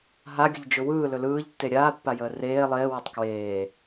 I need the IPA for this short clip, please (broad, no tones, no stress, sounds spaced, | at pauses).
ɦ a ɡʲ ə ʎ d͡ʒ ʊ w ɯː l ɵ l ɯː ʎ tː e ɾʲ aː pː a j əː r eː lˠ eː w o tˤ k w eː